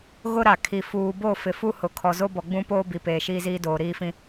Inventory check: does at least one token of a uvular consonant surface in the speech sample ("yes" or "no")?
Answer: no